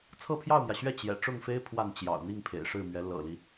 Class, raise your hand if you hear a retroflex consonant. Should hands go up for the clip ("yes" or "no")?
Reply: yes